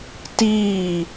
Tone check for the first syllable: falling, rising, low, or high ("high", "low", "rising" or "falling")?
falling